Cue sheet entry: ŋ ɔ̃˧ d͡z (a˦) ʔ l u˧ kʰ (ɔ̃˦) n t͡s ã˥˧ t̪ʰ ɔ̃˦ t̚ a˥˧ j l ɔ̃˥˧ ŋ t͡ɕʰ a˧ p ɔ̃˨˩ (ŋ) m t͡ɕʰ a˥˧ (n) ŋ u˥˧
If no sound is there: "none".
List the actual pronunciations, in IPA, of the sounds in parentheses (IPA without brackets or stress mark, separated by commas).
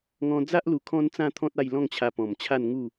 a˦, ɔ̃˦, none, n